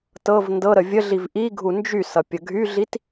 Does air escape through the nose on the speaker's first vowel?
no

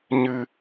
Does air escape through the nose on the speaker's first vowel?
no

